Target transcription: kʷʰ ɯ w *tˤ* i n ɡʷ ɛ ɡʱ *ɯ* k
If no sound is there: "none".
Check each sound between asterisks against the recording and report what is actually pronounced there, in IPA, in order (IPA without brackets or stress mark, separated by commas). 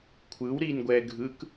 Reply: ɾ, ɯ